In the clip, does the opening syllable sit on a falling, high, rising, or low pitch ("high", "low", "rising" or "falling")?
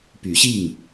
rising